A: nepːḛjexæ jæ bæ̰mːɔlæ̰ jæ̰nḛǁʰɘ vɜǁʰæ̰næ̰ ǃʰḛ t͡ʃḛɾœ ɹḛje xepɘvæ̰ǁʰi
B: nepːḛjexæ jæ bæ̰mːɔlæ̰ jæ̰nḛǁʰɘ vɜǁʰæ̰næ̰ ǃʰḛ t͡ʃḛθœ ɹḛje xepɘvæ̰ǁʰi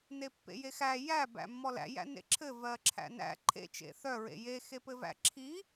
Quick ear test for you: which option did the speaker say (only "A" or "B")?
B